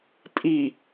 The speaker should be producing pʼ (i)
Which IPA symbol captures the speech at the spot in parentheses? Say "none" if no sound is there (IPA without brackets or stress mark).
i